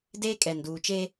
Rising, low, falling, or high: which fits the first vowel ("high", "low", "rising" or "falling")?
high